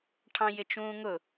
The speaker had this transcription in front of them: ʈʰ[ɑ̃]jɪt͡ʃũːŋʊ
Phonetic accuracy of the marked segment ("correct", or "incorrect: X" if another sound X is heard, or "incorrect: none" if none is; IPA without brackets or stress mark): correct